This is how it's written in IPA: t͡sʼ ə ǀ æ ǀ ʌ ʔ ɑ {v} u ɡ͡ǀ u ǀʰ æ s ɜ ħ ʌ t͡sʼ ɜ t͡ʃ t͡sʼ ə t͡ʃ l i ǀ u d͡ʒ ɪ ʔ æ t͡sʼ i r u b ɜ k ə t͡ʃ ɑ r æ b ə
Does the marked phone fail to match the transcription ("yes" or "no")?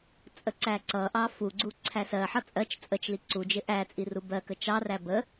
yes